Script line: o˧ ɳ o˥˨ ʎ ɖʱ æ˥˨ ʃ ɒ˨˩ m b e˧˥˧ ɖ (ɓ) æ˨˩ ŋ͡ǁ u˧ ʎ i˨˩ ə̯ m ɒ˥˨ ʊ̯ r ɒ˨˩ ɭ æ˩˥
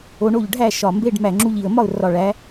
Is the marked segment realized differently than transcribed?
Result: yes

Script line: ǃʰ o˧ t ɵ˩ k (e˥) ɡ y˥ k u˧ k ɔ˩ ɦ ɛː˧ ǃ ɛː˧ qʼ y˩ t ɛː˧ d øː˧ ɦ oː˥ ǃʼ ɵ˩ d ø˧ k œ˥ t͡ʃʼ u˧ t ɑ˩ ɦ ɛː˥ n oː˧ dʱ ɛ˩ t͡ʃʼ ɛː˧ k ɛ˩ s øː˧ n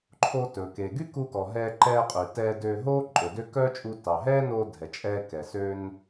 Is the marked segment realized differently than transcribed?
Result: yes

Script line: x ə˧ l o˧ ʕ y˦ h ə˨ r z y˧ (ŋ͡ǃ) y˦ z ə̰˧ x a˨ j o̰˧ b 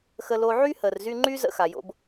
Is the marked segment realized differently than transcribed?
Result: no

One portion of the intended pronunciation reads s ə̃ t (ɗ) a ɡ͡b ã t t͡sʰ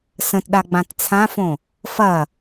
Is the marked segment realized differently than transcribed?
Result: no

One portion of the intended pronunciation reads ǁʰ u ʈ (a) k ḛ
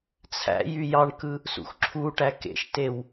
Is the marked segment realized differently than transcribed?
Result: yes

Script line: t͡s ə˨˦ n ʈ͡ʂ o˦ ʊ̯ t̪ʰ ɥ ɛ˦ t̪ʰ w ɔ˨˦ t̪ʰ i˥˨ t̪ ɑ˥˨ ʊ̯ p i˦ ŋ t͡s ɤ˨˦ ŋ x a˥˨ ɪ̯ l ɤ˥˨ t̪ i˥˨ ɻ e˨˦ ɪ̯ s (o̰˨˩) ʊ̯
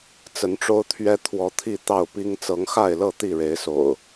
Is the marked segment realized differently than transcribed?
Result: no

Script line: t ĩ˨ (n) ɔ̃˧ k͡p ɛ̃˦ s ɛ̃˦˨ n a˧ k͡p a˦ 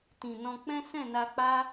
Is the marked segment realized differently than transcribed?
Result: no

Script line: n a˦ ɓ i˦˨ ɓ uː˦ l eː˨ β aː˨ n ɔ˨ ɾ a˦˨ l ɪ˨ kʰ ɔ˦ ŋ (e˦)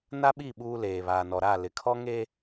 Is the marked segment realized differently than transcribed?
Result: no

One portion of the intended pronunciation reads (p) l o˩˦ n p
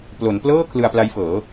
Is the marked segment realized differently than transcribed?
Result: no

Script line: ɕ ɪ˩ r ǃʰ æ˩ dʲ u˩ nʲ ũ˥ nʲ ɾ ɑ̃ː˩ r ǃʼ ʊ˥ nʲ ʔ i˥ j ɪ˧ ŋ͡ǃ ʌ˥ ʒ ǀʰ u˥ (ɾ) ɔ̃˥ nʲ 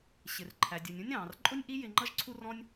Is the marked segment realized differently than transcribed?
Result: yes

